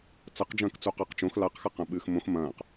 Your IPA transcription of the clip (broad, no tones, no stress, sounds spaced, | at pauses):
t͡s ɐ q d͡ʒ ɐ̃ː k t͡s u q a q t͡ʃ õ x l a q x a q ɐ̃ ɓ ɨː x m õ x m ɐ̃ː q